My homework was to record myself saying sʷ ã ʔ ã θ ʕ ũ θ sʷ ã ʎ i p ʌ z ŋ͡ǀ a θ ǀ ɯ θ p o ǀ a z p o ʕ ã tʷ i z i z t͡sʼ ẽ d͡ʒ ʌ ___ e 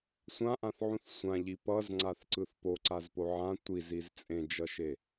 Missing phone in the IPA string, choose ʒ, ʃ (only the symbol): ʃ